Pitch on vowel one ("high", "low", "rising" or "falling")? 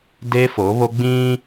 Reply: high